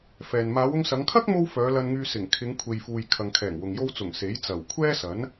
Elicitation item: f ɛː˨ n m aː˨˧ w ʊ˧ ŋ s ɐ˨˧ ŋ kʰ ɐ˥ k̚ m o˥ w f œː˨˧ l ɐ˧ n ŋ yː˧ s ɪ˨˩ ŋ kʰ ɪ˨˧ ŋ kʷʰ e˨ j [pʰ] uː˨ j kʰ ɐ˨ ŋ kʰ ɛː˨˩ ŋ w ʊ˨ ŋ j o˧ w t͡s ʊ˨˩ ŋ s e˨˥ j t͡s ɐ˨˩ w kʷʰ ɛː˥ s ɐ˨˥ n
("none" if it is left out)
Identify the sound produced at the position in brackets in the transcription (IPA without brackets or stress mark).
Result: f